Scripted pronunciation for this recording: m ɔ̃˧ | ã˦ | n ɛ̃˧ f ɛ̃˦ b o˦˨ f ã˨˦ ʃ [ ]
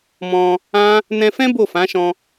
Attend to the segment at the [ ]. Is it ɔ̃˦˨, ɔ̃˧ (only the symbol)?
ɔ̃˧